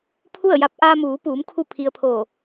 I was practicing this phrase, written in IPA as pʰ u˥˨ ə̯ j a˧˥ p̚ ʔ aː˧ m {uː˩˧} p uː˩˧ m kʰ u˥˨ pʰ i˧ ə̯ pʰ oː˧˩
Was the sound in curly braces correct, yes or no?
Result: yes